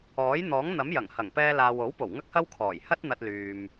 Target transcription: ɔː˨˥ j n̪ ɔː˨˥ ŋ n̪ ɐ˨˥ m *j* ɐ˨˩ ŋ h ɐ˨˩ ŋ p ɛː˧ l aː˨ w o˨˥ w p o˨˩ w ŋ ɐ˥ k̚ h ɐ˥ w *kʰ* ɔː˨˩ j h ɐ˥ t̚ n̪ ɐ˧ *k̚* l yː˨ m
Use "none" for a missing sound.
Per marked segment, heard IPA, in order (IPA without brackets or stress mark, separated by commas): j, kʰ, t̚